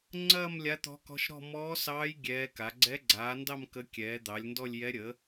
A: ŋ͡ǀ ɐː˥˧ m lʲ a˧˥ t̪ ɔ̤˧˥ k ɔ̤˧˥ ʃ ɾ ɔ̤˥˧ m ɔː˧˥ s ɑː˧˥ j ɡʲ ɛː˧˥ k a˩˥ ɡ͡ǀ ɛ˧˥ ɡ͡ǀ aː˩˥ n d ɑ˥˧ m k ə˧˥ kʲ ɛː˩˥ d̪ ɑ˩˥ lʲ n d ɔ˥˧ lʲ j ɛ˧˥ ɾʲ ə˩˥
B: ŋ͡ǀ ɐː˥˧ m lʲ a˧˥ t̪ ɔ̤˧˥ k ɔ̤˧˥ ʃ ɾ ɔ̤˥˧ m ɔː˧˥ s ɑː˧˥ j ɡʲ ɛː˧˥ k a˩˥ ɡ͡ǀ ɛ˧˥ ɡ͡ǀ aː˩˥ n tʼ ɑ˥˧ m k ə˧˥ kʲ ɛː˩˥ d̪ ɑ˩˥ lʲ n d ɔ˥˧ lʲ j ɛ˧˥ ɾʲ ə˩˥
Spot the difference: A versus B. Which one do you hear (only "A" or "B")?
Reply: A